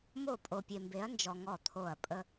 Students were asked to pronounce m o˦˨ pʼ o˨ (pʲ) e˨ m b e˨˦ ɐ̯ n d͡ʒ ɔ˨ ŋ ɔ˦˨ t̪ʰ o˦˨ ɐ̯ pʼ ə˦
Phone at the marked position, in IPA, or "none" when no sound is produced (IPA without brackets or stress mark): pʲ